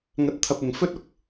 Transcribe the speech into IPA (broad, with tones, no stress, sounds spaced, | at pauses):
ŋ ɐ˧ t̚ t̪ʰ ɐ˧ p̚ ɪ˨ ŋ f ɵ˥ t̚ ʊ˧ k̚